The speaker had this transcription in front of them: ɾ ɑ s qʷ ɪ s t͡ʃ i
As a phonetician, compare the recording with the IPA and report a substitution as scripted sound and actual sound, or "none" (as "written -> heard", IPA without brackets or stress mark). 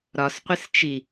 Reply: ɑ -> ɒ